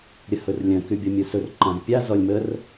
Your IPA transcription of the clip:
ɾʲəhɵrlʲœ̃ kybʲɔmʲusɵr ǃãzpʲa zɔlʲmər

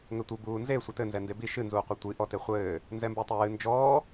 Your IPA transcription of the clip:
ŋɘtʷɨ buːnze sʷɘtɘ nzɛndebi ʃɨ nzuːqʷɛtʷi ʔɔteχʷɘː | nzɛmbutˤejɨ nd͡ʒɔː

